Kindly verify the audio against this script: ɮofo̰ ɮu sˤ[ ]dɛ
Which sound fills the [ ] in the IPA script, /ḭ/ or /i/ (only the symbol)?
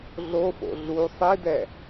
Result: i